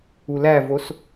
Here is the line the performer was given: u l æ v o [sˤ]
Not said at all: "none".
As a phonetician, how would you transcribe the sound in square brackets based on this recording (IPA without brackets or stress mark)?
s